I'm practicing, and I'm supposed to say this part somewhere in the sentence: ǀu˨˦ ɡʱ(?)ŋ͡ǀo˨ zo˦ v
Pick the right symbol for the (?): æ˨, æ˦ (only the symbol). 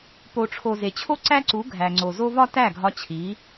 æ˨